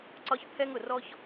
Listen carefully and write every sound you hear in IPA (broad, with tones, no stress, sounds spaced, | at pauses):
ǀ ɒ˥ ç pʰ ɛ˥ ŋ ʊ˩ r ɔ˥ ç